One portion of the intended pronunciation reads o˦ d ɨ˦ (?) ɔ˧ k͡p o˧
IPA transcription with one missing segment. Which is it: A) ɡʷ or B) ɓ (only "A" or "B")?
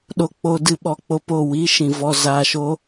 B